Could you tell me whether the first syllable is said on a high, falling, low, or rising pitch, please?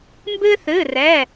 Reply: high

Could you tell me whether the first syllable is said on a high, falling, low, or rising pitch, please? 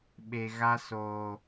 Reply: low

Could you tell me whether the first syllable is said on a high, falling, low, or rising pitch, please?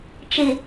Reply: low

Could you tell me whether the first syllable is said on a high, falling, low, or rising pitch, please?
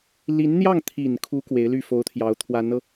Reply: rising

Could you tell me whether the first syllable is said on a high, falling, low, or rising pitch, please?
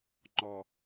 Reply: low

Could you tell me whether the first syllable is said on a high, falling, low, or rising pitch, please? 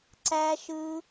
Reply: high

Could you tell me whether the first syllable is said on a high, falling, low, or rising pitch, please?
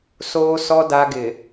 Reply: low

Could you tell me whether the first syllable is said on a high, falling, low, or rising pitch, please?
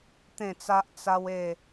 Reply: falling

